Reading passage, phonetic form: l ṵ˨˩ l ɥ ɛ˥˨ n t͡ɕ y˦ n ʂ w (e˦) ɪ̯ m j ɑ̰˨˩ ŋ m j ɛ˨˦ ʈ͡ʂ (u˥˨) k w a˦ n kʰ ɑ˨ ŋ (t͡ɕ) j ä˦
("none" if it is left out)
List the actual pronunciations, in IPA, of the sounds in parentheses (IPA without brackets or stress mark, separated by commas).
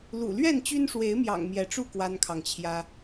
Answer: e˨˦, u˥˨, t͡ɕʰ